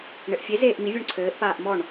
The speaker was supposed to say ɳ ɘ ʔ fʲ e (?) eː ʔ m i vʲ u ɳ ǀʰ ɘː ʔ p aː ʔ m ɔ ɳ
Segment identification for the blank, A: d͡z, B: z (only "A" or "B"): B